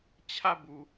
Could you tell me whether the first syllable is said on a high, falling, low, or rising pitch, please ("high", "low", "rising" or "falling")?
falling